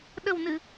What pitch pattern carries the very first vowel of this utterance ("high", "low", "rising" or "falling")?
low